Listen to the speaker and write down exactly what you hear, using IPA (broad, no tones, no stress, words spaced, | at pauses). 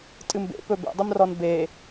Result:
tʼɨmbḛpɵ bḛdˤimrɔn be